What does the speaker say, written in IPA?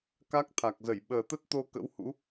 k a˦˥ k̚ t̪ʰ a˨˩ k̚ z ə˧˩ j ɓ əː˨˩ t̪ ə˦˥ t̚ t̪ o˧ k ə̰˧˥ w h ṵ˧˥

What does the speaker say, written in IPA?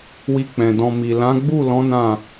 w i˧ k͡p ɛ̃˨ d ɔ̃˧ m i˨ l ã˨˦ ɡ͡b u˦˨ l ɔ̃˨˦ n ã˦˨

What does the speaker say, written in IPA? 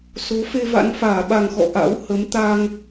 s o˨˦ f e˧ v a̰˧˥ n f aː˧˩ ɓ a˨˩ ŋ x ɔ̰˧˨ ʔ a̰˧˥ w h ə˨˦ m t̪ aː˧ ŋ

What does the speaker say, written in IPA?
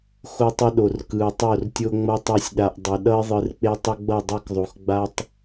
x o˦ tˤ ʌ˦ ɗ o˨ r k ɯ˨ ə̯ tˤ o˦˨ r tʲ o˦ ŋ͡m ʌ˦ tˤ a˦ sʲ ɗ a˨ ʔ dˤ ɛ˨ ɗ ʌ˦ ɪ̯ ðˤ ɯ˨ r k͡p e˦ tˤ ʌ˦ ɡ͡b ʌ˦˨ dˤ ɛ˦ k ðˤ o˨ x ɡ͡b a˦ tˤ

